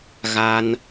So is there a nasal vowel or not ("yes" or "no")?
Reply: no